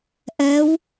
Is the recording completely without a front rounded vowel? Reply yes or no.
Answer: yes